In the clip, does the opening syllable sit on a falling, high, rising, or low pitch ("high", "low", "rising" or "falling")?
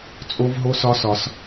high